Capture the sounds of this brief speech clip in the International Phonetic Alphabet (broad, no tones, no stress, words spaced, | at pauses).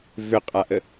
vʏqʼaʔə